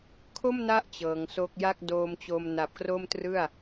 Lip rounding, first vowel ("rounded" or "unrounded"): rounded